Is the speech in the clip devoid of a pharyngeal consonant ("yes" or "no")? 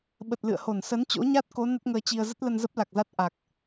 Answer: yes